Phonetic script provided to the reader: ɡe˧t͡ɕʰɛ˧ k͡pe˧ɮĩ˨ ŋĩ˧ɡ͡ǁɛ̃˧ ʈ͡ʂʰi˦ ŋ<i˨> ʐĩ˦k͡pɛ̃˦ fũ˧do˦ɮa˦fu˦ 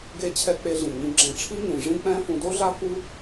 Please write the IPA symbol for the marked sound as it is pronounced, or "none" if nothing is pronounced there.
ĩ˨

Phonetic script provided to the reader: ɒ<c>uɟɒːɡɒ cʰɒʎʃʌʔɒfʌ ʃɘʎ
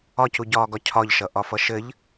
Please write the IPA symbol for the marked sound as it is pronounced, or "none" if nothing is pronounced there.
c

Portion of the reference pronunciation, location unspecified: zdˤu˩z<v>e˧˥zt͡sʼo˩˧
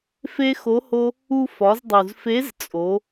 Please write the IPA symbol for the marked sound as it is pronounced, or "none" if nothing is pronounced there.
f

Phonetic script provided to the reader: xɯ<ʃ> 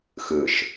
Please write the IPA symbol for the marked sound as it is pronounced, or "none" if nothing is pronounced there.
ʃ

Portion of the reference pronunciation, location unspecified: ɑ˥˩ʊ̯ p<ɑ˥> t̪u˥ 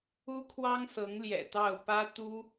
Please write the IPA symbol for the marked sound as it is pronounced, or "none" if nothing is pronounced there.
ä˥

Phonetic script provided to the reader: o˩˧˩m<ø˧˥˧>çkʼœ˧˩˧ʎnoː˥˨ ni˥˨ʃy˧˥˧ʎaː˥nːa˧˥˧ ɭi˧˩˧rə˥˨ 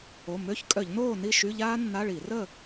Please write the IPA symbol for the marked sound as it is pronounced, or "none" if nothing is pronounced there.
ø˧˥˧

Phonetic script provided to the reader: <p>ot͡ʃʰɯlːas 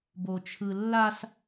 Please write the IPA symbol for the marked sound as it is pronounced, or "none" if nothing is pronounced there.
b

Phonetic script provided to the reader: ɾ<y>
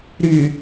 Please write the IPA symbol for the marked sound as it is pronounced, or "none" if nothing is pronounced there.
y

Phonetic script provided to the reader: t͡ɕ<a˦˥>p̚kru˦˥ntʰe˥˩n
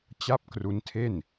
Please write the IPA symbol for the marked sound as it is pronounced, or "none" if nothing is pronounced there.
a˥˩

